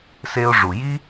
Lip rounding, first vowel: unrounded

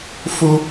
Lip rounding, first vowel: rounded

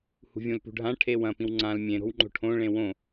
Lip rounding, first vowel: rounded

